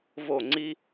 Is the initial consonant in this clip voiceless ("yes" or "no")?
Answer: no